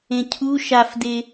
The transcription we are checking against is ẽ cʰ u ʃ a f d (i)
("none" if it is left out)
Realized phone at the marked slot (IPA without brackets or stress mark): e